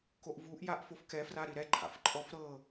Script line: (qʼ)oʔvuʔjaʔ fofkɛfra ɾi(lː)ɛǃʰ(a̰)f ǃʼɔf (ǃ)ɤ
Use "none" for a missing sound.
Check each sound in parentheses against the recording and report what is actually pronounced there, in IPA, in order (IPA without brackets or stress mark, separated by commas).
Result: k, ɾ, a̰, ɾ